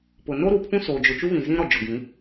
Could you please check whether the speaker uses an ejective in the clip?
no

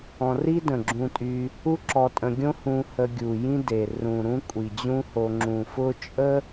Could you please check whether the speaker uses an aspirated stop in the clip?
no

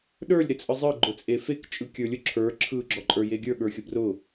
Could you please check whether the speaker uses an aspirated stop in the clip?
yes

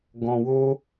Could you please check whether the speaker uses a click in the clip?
no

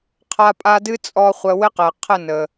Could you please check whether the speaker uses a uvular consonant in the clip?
yes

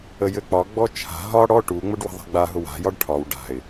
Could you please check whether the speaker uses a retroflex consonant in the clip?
yes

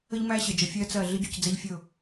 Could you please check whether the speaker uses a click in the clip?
no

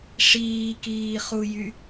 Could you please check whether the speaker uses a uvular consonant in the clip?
yes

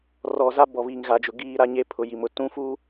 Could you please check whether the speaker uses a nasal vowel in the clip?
yes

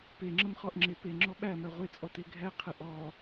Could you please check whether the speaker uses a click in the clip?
yes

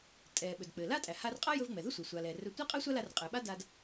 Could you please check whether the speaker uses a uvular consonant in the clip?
yes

